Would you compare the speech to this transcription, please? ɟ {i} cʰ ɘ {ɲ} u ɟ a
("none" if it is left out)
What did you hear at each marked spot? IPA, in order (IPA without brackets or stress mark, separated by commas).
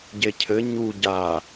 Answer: e, ɲ